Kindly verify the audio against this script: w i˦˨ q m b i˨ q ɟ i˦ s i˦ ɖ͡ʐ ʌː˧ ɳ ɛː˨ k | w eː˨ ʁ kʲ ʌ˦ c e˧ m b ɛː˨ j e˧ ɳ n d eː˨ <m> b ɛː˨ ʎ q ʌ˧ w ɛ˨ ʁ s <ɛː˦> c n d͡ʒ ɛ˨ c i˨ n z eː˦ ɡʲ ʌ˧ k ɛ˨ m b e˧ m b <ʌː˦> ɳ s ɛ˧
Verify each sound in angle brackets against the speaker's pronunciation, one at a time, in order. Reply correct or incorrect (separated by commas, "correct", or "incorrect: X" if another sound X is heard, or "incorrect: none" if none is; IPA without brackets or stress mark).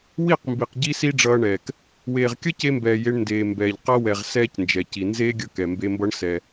correct, correct, incorrect: ʌ˦